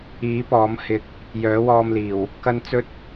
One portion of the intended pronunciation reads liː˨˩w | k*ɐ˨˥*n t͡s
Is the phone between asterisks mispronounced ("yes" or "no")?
yes